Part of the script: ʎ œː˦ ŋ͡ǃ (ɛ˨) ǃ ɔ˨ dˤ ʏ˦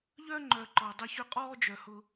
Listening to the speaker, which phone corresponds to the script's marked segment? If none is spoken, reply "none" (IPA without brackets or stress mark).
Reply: œ˨